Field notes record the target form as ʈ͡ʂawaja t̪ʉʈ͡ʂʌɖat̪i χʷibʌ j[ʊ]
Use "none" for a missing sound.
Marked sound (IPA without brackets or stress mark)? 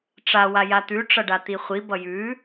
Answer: ʉ